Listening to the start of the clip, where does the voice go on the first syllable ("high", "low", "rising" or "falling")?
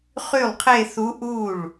falling